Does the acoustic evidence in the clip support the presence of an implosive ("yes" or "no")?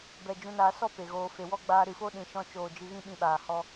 yes